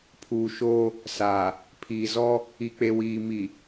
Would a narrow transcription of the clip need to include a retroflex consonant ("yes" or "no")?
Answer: no